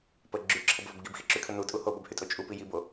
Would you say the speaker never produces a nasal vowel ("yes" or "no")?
yes